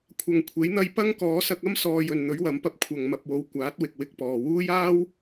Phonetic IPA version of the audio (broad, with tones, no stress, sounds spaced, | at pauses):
kʷʰ ɐ˨ ŋ kʷʰ e˨˥ j n̪ ɐ˧ j p ɐ˥ ŋ k ɔː˨˥ s ɐ˧ k̚ ɐ˥ m s ɔː˧ j ɵ˨ n n̪ ɵ˨˥ ɥ w ɐ˨˥ m p ɐ˧ p̚ kʷʰ ɐ˨ ŋ m ɐ˨ p̚ w o˨˥ w kʷ aː˨˥ t̚ w ɪ˨ k̚ w ɪ˧ k̚ p ɔː˨ w uː˥ j aː˥ w